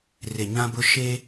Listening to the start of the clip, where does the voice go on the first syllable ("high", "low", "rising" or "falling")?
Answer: low